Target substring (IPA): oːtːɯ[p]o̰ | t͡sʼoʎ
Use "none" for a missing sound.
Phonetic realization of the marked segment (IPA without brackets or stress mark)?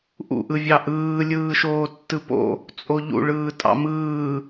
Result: p